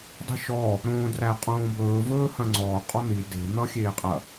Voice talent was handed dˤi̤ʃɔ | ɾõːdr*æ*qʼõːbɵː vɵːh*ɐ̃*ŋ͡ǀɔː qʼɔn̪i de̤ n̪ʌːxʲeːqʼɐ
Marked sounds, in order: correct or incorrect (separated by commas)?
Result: correct, correct